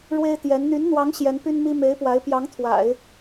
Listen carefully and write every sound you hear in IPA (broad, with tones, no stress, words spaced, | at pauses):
ɻwe˥ɪ̯t̪jɛ˧˥n n̪y˧˥nn̪wɑ˧˥ŋ ɕjɛ˧˥npy˥nmi˥ me˧˥ɪ̯ pwa˧˥ɪ̯ pjɑ˧˥ŋ t̪ʰwa̰˨˩˦ɪ̯